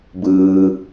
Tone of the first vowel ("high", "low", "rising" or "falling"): low